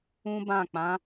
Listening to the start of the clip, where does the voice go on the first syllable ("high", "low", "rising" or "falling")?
high